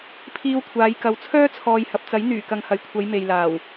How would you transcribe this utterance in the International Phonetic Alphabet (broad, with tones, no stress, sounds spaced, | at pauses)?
pʰ iː˧ w kʷʰ aː˨˧ j k ɐ˨˧ w t͡sʰ œː˥ t͡sʰ ɔː˨ j h ɐ˨ p̚ t͡s ɐ˨˥ j n̪ yː˨˩ k ɐ˨ ŋ h ɐ˨˩ j kʷʰ ɐ˨˧ j m e˨ j l aː˨˩ w